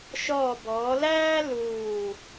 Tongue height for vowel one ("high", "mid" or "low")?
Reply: mid